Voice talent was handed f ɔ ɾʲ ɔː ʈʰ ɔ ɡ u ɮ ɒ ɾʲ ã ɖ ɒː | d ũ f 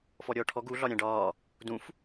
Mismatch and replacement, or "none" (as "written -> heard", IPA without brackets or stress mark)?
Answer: none